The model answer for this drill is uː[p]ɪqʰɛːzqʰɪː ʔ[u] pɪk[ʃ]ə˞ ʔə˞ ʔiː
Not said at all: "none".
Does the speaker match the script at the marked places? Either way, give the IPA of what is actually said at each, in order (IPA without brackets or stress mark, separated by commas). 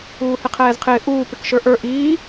h, uː, ʃ